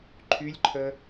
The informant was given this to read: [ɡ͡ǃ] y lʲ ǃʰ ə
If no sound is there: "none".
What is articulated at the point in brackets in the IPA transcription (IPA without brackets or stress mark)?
ǃʰ